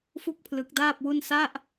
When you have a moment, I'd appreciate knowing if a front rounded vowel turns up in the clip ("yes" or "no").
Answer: no